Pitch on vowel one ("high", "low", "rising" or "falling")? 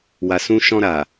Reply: low